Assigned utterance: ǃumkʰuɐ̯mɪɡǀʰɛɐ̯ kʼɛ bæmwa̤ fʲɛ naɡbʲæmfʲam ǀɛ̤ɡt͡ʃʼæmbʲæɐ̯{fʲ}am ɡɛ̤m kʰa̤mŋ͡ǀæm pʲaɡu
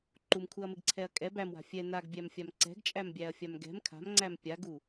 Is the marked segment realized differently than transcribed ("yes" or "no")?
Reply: no